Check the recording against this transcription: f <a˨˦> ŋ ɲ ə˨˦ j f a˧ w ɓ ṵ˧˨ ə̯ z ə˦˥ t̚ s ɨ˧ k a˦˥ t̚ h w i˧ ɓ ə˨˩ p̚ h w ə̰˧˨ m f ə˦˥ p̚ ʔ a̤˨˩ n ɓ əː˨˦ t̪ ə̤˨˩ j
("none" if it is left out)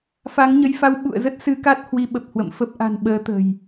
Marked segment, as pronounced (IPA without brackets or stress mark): a˨˦